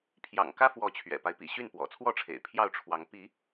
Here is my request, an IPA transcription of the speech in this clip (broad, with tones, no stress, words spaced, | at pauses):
pʰjɑ̰˨˩ŋkä˦fwɔ˨˦ t͡ɕʰɥɛ̰˨˩pa˦ɪ̯pḭ˨˩ɕy˥˨n pwɔ̰˨˩t͡sʰwɔ˥˨ʈ͡ʂʰḛ˨˩ɪ̯pʰjɑ˥˨ʊ̯ ʈ͡ʂʰwɑ˨˦ŋ pi˨˦